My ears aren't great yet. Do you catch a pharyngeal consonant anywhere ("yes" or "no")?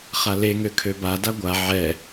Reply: yes